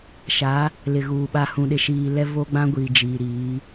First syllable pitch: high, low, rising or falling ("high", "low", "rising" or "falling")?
rising